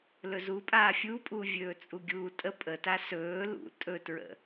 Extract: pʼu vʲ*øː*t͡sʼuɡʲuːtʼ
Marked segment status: incorrect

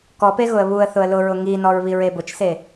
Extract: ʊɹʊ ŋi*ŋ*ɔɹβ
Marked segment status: incorrect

